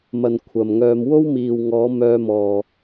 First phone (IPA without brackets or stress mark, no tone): m